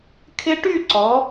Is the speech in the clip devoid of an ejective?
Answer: yes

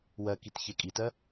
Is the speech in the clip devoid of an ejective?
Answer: no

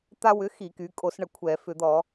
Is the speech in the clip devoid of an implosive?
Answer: yes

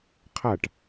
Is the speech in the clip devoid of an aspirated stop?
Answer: no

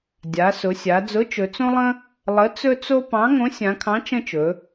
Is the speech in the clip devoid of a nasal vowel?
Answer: no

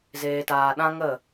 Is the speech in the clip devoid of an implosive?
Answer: no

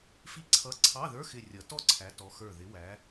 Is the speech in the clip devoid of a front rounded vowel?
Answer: yes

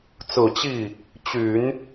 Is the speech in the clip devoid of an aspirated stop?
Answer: yes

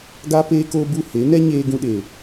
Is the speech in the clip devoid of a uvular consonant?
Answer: yes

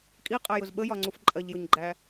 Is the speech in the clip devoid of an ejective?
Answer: no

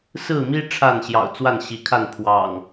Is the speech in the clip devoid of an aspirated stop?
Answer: no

